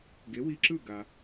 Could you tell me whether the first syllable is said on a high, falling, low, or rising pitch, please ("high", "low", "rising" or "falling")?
rising